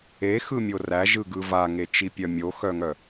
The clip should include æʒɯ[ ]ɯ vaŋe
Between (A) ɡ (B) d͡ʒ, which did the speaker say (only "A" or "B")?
A